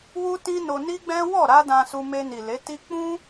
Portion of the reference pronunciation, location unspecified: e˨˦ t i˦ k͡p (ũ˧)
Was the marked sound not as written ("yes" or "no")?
yes